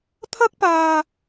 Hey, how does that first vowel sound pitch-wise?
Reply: high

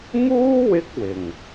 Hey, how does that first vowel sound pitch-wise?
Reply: high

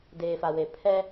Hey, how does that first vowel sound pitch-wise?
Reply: low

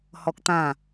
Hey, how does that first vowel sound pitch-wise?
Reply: high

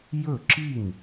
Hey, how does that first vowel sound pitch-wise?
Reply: falling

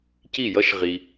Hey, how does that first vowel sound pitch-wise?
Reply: falling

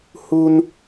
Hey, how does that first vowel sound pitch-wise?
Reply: high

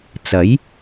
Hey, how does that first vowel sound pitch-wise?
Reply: rising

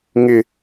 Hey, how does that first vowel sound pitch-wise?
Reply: high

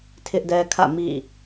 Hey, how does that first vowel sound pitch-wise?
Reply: high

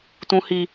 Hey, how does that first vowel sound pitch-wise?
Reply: high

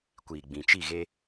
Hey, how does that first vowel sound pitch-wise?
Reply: low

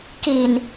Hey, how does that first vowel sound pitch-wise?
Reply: low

